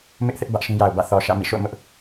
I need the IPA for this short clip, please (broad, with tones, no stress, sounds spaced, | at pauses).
m ɪ˦ ʔ θ ɪ˦ ʔ b ä˦ ʔ ʃ ĩ˦ j a˨ ʊ̯ b ä̰˦˨ θ ɔ˨ ʃ ä̰˦˨ m ḭ˦˨ ʃ o̰˦˨ ʊ̯ m ʊ˦ ʔ